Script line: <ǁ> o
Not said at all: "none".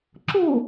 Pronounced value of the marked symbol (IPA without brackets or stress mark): ǁ